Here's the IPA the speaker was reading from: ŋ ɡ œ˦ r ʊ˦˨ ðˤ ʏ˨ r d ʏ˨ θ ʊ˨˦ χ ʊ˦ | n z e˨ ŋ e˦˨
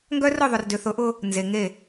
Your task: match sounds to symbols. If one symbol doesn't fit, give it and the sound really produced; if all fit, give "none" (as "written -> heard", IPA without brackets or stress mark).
χ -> ʔ